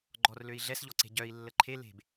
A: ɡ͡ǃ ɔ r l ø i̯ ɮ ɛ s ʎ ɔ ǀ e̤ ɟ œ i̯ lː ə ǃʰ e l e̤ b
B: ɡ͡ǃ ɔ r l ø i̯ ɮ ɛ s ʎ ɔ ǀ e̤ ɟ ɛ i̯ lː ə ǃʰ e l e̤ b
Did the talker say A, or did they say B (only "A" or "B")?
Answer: A